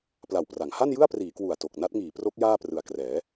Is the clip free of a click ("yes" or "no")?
yes